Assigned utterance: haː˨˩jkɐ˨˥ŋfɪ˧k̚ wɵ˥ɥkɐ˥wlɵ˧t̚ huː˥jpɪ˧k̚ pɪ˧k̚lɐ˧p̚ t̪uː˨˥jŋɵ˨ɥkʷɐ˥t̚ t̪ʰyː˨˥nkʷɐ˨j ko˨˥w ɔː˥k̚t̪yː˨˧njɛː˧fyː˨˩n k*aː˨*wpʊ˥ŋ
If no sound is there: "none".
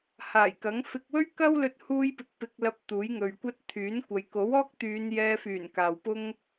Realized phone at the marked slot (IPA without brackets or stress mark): aː˨